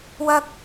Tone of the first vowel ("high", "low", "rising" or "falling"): high